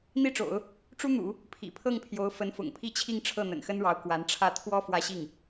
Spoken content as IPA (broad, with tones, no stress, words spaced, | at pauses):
n̪i˥ʈ͡ʂo̰˨˩˦ʊ̯ | ʈ͡ʂu˥n̪ṵ˨˩˦ | pʰḭ˨˩pʰɤ˥˩ŋpʰjo˧˥ʊ̯ fə˧˥nfʊ̰˨˩ŋpʰi˥˧t͡ɕʰi˥˧ŋ ʈ͡ʂʰɤ˥˩n̪ə̰˨˩nxə˥nɻɑ˧˥ʊ̯ kwa˧˥nʈ͡ʂʰä˥˩ t̪ʰwɔ˥ fwä˥˧ɕi˥˩ŋ